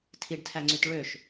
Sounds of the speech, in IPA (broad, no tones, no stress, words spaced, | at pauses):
tʰiɖtʰæŋ͡ǀyt ɭøʃ